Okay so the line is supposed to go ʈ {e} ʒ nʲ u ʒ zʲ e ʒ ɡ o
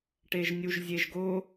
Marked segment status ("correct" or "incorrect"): correct